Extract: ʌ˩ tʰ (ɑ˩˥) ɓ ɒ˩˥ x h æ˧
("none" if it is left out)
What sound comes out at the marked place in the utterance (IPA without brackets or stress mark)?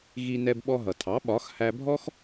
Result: ɑ˩˥